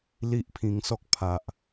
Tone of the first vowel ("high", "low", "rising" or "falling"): high